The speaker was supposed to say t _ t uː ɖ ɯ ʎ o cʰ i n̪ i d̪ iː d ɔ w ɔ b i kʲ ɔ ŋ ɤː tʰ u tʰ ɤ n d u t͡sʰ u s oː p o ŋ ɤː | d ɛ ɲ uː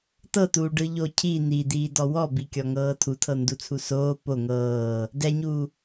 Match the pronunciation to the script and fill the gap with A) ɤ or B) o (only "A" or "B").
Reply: A